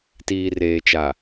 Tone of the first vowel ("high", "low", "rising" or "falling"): low